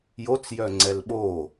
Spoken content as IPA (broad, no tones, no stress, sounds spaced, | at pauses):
j o t͡s j œ ŋ͡ǀ ɛ l ɓ o